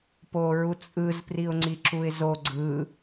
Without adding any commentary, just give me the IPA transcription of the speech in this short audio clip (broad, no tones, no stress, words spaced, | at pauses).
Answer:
poɹut͡sʼɯz priʊ̯ŋ͡ǀiǁuɪ̯zo ɡ͡ǀɯ